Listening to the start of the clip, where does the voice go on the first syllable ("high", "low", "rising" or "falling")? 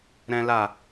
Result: high